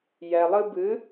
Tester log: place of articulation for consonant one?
palatal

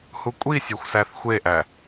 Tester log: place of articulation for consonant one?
glottal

